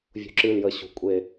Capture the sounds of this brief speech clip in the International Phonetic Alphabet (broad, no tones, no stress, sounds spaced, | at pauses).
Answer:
vʲ ṳ ǁ ɨ l j ə ɕ ṳ kʷʼ e